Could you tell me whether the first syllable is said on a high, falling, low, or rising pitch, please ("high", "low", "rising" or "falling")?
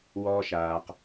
high